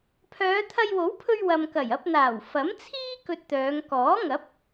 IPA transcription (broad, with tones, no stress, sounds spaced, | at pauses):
pʰ œː˨˧ t̪ʰ ɐ˧ j w o˨˥ w pʰ ɵ˧ ɥ w ɐ˨ m k ɐ˨˩ j ɐ˧ p̚ n̪ aː˨˩ w f ɐ˨˥ m t͡sʰ iː˥ k ɵ˧ t̚ t̪ œː˨˧ ŋ k ɔː˨˥ ŋ ɐ˨˥ p̚